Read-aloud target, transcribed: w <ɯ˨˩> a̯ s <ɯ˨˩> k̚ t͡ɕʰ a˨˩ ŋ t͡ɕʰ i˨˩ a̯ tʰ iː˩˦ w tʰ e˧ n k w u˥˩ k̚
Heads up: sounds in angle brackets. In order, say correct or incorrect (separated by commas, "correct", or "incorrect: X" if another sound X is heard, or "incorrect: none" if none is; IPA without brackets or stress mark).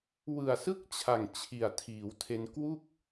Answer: correct, incorrect: ɯ˦˥